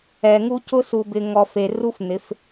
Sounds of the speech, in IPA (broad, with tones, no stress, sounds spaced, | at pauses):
ɛ˨ ŋ u˦ c ʊ˦ s u˨ b ɪ˨ ŋ ɔ˨ f e˨ r u˦ f n̪ ɪ˨˦ f